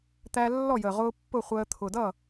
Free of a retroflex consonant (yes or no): yes